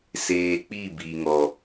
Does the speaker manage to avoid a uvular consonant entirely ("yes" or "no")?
yes